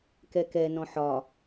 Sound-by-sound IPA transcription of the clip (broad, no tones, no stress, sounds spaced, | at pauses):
k ɛ k ɛ n ɔ̃ ħ ɒ